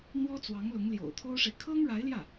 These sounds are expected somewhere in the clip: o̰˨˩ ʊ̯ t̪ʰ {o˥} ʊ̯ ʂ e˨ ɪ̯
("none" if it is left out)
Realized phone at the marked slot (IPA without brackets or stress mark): o˥